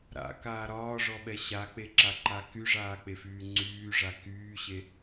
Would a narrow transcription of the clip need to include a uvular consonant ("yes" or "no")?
no